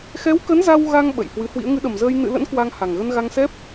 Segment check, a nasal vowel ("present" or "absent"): absent